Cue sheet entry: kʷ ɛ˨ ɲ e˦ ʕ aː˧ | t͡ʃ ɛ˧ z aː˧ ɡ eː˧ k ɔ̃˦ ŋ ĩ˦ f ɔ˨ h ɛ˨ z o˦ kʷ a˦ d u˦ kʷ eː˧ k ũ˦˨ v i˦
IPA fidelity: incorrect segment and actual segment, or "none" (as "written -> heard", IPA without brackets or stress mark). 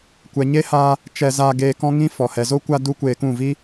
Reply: ʕ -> h